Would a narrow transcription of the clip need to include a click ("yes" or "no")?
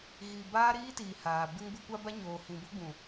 no